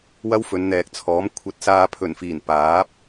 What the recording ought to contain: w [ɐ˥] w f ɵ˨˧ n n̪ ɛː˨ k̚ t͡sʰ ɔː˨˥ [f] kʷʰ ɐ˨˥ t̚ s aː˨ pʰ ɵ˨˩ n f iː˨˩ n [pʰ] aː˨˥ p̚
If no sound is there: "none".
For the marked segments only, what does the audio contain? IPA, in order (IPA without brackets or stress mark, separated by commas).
ɐ˥, m, p